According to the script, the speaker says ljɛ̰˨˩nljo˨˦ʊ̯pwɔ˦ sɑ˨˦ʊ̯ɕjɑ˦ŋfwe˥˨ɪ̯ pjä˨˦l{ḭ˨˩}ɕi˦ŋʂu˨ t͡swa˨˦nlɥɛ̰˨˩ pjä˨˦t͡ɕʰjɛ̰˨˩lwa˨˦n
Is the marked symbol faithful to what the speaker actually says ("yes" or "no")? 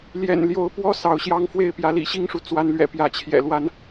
yes